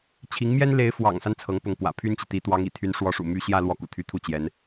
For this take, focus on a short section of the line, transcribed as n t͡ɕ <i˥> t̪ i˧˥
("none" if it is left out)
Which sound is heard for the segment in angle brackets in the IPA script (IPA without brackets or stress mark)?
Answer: i˨